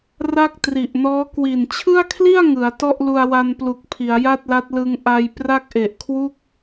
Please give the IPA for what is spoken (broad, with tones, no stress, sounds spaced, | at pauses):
r a˥˩ k̚ t r i˨˩ ʔ n ɔː˦˥ k w i˨˩ n t͡ɕʰ ɯ˥˩ a̯ kʰ l i˥˩ a̯ ŋ ɯ˩˦ a̯ t ɔ˥˩ ʔ l u˧ a̯ w a˧ n p l u˨˩ k̚ pʰ i˩˦ a̯ j a˥˩ t̚ l a˦˥ t̚ l ɯ˧ ŋ ʔ a˧ j p r a˥˩ k̚ ʔ e˨˩ ʔ kʰ w u˥˩ k̚